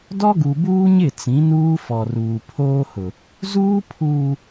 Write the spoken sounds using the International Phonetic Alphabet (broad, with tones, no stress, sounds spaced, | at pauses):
d ɔ˦ ɡ u˨ b uː˦ ɲ ɪ˦˨ t͡s ĩ˨˦ n uː˦ f ɔ˨ r uː˨ pʰ oː˦ h ʊ˨ | z uː˦ pʰ uː˨